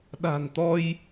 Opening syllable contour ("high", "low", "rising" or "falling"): low